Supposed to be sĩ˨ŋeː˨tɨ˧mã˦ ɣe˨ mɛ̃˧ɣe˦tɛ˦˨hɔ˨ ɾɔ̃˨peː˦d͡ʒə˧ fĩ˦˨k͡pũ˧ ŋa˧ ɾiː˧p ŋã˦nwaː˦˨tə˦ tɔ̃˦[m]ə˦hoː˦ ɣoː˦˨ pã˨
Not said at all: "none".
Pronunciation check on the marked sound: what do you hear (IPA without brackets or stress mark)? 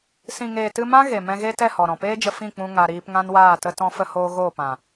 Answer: f